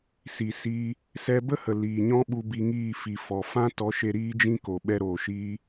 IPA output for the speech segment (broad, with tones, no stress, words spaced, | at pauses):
si˨siː˧ | sɛ˧bə˦hə˨ liː˨ɲɔ̃˦ ɓu˧bi˧ŋiː˦˨ fi˨ fɔ˨ fã˦tɔ˨˦ʃe˧ ɾiː˦d͡ʒĩ˦ko˨ ɓɛ˧ɾoː˨ʃiː˧